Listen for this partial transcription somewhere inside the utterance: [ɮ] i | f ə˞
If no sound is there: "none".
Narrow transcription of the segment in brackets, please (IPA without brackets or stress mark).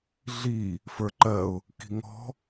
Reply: ɮ